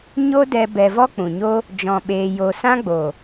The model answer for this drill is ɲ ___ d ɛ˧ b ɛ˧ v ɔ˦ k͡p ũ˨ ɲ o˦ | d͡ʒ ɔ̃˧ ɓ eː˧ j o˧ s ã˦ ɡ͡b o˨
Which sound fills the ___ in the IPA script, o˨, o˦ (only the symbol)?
o˦